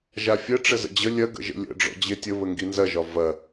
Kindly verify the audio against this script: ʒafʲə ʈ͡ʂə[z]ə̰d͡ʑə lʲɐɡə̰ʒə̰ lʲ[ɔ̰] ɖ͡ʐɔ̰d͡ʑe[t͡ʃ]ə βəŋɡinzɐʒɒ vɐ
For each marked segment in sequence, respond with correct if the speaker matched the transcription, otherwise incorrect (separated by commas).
correct, incorrect, incorrect